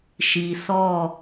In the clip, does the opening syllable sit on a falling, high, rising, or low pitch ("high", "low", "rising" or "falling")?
low